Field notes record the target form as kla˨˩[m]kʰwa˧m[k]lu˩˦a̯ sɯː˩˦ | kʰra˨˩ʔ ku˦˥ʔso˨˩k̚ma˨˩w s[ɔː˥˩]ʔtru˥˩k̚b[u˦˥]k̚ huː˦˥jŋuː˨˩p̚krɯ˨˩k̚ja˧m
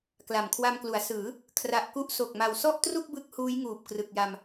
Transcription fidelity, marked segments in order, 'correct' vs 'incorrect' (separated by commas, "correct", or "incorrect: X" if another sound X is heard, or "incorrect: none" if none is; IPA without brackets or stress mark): correct, correct, incorrect: ɔ˥˩, incorrect: ɯ˦˥